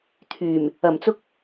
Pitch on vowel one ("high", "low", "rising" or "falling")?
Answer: low